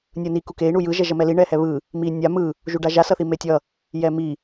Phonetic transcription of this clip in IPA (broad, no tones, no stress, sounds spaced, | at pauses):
nʲ ɯ n i k u k e i̯ ɳ u j ɯ ʒ ɛ ʒ ʌ m ɛ l i ɳ ɛ h ɛ β ɯ | m i nʲ a m ɯ | ʒ u ɖ a ʒ a s ʌ θ i m e tʲ ʌ | j ɛ m i